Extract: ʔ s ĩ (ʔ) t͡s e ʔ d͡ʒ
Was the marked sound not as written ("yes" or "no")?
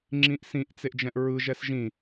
no